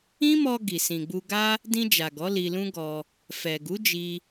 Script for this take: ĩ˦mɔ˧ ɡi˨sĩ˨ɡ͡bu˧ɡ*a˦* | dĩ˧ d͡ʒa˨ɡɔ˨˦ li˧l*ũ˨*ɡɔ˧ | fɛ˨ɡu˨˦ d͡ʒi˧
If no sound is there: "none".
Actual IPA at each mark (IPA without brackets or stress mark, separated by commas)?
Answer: a˦, ũ˦